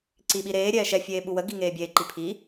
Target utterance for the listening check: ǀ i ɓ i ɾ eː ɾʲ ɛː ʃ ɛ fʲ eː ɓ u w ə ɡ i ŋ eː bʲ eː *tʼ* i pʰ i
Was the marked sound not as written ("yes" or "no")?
yes